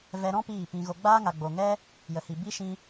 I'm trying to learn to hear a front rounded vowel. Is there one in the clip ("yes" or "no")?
no